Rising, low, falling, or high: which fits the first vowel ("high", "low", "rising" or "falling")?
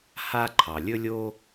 high